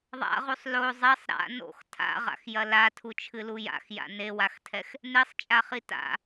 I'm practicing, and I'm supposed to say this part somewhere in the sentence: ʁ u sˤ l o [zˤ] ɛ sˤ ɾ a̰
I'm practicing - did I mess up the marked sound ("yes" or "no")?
no